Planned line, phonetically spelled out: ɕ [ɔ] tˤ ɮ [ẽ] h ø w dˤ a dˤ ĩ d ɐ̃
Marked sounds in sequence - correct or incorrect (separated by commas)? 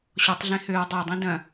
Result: correct, correct